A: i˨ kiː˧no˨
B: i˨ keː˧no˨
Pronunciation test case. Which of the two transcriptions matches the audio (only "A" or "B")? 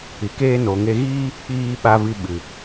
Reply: B